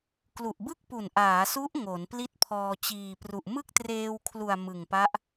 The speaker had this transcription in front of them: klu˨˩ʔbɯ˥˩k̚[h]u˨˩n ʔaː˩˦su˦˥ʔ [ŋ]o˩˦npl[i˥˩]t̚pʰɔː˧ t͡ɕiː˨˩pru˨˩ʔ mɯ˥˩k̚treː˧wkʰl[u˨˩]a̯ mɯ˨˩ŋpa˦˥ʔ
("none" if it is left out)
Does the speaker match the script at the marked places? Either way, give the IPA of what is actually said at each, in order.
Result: p, ŋ, i˥˩, u˨˩

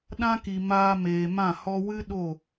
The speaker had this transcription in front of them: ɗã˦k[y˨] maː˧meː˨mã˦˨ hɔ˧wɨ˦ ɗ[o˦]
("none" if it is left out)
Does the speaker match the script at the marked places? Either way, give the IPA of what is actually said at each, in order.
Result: i˨, o˦˨

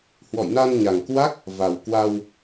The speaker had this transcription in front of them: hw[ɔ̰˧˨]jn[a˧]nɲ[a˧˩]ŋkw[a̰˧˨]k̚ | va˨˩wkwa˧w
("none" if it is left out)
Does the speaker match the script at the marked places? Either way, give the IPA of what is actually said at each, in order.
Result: ɔ̰˧˨, a˧, a˨˩, a˦˥

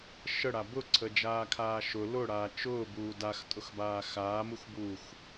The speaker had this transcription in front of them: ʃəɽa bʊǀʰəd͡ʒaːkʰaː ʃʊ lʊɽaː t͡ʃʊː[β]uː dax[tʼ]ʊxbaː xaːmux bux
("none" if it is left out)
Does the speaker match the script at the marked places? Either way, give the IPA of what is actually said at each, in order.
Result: b, tʼ

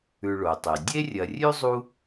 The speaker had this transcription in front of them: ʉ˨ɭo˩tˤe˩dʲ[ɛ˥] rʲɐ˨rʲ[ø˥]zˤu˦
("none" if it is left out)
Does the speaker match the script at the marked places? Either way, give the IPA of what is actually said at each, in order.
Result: e˥, ʉ˥

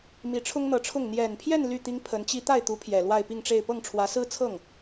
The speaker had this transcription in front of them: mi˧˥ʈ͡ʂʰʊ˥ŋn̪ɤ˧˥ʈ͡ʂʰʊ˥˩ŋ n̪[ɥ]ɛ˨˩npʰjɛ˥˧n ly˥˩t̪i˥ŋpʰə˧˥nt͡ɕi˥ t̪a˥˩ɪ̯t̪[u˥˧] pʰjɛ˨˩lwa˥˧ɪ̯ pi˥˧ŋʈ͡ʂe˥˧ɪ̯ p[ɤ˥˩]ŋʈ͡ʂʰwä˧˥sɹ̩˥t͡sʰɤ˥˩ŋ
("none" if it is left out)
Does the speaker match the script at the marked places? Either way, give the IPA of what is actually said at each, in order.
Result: j, u˧˥, ɤ˥˩

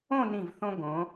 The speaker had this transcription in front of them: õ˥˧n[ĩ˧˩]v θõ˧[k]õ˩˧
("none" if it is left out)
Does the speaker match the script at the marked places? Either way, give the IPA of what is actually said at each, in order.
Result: ĩ˧˩, ɡ

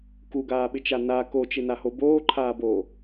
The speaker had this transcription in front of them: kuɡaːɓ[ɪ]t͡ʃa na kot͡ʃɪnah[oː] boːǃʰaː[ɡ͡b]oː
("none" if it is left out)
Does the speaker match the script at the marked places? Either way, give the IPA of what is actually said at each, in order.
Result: ɪ, o, b

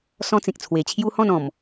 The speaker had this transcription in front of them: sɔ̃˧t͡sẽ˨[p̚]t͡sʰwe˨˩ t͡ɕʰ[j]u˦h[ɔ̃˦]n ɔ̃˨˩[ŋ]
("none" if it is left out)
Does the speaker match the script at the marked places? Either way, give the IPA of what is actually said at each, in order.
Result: k̚, j, ɔ̃˥˧, m

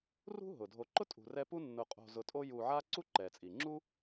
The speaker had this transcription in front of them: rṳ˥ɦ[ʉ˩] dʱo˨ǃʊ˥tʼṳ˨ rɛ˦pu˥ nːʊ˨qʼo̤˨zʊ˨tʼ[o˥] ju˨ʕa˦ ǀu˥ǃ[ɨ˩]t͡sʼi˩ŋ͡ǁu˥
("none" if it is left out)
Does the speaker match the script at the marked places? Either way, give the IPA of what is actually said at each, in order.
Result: ʊ˩, o˦, ɛ˩

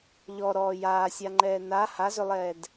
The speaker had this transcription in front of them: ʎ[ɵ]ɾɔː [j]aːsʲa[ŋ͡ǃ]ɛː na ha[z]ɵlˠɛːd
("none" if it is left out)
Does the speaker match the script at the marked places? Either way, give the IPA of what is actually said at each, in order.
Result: ɔ, j, ŋ͡ǃ, z

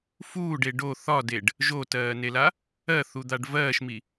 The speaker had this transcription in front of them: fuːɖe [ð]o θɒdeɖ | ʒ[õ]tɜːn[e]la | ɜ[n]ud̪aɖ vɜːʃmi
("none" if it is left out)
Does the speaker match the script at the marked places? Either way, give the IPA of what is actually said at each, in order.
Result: ɖ, o, e, θ

